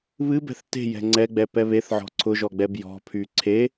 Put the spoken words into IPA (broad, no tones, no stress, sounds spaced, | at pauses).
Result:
β ɨ b ɛ̤ θ t e̤ j ɛ̤ ŋ͡ǀ ɛ ɡ͡b ɛ p ɛ β e θ ʕ ɔ̤ ǀʰ ʊ ʒ ɔ ɡ͡b ɛ b j ɔ̤ pʰ y ǀʰ e